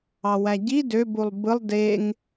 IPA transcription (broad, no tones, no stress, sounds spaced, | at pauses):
ɑ w æ ɟ i d ø b u lˠ b ɯ lˠ d e ŋ